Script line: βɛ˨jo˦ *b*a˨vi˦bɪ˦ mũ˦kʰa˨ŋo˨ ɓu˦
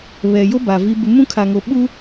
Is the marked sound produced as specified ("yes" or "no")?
yes